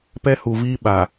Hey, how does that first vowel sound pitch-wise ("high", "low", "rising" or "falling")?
high